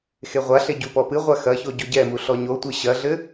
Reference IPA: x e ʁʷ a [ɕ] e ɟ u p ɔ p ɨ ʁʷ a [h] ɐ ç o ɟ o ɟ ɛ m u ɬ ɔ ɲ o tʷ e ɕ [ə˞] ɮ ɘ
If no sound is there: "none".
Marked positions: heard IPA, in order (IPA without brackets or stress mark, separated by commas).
ɬ, x, ɐ